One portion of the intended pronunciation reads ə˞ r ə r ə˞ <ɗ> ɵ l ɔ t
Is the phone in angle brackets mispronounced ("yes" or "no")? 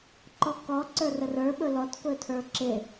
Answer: yes